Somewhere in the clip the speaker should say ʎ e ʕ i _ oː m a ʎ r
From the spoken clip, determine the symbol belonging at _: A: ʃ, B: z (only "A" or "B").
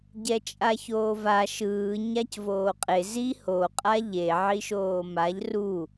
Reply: A